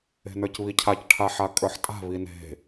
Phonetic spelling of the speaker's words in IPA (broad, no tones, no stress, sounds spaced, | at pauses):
e̤ n ə˞ c β i cʰ a c ʈʰ a ħ a kʼ ə˞ ħ tʼ a̤ β i n e̤